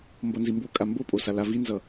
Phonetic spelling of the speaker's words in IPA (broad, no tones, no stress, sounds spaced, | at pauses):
m b ʌ n z i m b o kʼ a m b o pʼ o s a l a v i n z ʌ